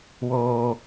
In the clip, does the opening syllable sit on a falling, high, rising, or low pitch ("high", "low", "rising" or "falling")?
low